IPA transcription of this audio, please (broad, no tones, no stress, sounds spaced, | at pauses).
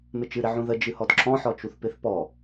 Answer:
m ɪ t͡ʃ ɨ ɾ ɪ ʕ ũ ð ə d͡ʒ ɨ h ɔ d ǁ ɔ̃ ħ ɔ t͡ʃ u θ p ɪ θ p ɔ